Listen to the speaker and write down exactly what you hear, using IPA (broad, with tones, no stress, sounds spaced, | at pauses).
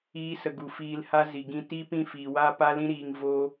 iː˧ s ə˨ ɡ u˨ f iː˧ l h a˦ z i˨ ɡ ĩ˧ t i˦ p ĩ˦˨ f iː˨ w aː˦ p a˦ l ĩ˦ ɾ iː˧ ŋ v o˦